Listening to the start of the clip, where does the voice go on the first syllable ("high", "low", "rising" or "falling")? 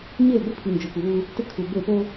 falling